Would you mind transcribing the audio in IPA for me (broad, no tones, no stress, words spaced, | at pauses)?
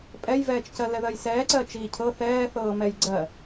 pʼɛjvɛːt͡ʃcɜ lɛðɜjsɛːǀɜ t͡ʃiːcʰɤ θɛːθɤːmɛj ɡ͡ǀɜ